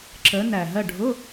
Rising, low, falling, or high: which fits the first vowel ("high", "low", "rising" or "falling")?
rising